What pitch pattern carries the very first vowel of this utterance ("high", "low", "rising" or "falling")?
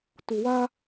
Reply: low